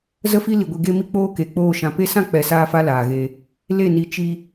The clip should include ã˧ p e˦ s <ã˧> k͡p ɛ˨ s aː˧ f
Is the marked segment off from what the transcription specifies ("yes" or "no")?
yes